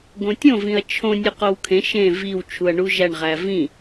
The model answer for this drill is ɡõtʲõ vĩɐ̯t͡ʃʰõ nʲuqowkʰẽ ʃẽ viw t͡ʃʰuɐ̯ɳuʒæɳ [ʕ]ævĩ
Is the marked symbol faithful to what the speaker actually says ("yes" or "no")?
no